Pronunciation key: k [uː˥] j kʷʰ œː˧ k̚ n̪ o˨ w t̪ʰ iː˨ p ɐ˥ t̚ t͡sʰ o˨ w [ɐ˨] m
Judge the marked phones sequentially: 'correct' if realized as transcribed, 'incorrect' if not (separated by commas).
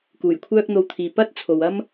incorrect, incorrect